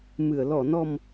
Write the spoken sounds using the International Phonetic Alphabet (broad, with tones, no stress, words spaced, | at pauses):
mɨ˨˩˨ə̯ lɔ˨˩˨nɔ˨˩m